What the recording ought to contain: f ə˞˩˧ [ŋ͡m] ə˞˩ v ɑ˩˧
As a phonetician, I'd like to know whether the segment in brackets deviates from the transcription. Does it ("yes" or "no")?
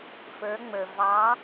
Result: no